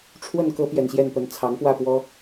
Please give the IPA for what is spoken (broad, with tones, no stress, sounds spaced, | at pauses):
ʈ͡ʂʰ w ə˥˩ n k ɤ˥ p j ɛ˨˩ n ɕ j ɛ˥˩ n p ə˧˥ n t͡sʰ ɑ˧˥ ŋ p w ä˥˩ p w ɔ˥